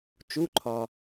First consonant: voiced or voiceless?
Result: voiceless